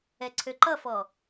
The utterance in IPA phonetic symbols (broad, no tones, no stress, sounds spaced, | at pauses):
ɛ ǀʰ ø ǃ ʌ f ɔ